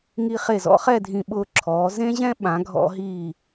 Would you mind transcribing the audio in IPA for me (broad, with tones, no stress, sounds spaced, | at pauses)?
ŋ i˧ χ e˧˩ z ɔ̰˥ χ ɛ˥˧ dʱ ĩ˧ ɓ ʊː˧ ǁʰ ɔː˩˧ z ẽ˥ ʑ ɛ̃˥ ɓ ã˩˧ ɡʱ ɔ̰˧ ɦ iː˧˩